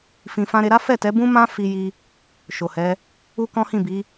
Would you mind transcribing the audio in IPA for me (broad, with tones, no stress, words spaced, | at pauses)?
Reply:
fĩ˨fã˧ɾe˧ ɾa˦fɛ˦˨tɛ˨˦bũ˦ mã˦ fi˦ji˦ | ʃo˨hɛ˨˦ | u˦kɔ̃˦hĩ˦˨bi˨˦